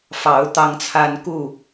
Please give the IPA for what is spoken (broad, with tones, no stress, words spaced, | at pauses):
fɑ˨˦ʊ̯ t̪ɑ˦ŋt͡sʰa˦n ku˥˨